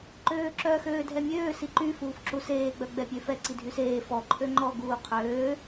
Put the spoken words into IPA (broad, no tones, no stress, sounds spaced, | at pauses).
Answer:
ǃ øː ǁ œ x øː dʱ ɛ mʲ øː s i ǃ y f uː f ǁ u s eː ɡ͡b œ ɡ͡b ɛ pʲ ø f ɛ ǀ i dʱ y s eː f ɔ ǃʰ ø ŋ͡ǃ ɔ ɡ uː qʰ øː